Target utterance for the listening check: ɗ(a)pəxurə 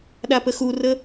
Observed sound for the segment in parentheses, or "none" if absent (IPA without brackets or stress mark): a